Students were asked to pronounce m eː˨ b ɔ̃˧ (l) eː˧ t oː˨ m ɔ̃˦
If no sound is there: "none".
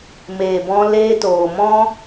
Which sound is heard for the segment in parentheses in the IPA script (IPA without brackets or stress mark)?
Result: l